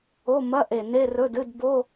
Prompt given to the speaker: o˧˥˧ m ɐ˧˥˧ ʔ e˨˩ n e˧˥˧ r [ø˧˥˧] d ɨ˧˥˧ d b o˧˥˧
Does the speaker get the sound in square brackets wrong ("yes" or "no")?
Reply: yes